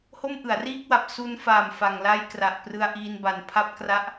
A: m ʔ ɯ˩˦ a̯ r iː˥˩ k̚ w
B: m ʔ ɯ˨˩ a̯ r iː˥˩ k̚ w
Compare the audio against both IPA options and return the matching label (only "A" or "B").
A